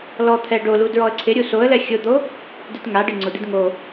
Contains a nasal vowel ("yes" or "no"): no